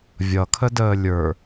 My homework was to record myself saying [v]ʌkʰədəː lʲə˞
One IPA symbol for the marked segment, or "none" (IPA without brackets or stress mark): vʲ